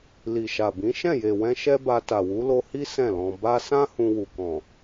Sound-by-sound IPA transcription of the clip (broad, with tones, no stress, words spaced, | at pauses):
li˨ʃa˨bĩ˨˦ ʃɛ̃˦˨je˨wɛ̃˧ ʃɛ˦ba˧ ta˨wu˨˦lo˧hi˦ sɛ̃˦˨lɔ̃˧ ba˧sã˦ hũ˧wu˨kɔ̃˨